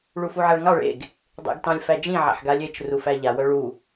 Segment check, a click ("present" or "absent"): absent